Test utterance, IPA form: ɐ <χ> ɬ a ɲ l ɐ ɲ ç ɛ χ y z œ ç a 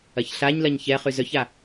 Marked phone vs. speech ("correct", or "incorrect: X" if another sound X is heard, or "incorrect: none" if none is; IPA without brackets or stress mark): incorrect: ç